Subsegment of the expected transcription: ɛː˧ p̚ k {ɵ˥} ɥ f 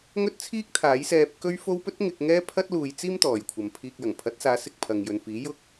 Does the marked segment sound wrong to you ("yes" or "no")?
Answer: no